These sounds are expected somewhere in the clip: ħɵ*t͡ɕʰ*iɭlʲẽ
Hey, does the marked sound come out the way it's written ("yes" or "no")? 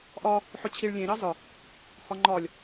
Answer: yes